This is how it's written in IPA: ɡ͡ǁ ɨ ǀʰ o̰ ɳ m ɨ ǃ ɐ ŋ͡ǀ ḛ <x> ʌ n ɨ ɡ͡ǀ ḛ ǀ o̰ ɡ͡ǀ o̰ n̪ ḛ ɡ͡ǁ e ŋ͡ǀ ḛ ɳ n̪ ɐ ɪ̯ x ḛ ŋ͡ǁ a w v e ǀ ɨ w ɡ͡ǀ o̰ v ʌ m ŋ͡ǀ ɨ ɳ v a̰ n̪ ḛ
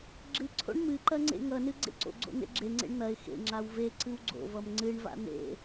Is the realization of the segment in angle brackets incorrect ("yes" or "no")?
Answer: yes